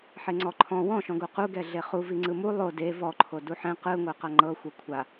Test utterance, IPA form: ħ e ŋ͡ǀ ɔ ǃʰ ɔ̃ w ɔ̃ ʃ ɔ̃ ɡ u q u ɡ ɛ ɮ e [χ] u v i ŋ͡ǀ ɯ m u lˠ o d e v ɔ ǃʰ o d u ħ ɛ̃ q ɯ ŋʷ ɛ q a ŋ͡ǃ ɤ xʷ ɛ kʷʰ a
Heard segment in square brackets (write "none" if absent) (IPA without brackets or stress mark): χ